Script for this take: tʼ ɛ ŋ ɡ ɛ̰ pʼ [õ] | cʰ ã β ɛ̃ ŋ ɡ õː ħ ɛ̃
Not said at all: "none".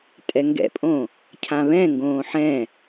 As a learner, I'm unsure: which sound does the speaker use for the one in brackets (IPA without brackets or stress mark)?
õ